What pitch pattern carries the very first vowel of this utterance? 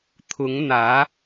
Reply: rising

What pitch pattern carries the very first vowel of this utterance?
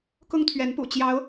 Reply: high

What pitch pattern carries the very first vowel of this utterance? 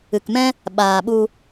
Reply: low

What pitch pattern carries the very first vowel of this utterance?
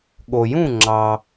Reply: low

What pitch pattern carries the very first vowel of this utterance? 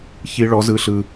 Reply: high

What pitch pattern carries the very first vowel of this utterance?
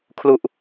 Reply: falling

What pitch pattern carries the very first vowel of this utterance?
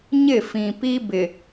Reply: falling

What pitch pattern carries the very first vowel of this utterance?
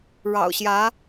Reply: low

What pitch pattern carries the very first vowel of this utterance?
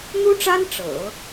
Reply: high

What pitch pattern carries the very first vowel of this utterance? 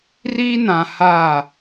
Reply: high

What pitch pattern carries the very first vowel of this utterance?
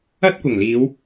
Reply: high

